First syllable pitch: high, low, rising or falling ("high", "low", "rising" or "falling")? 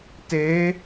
rising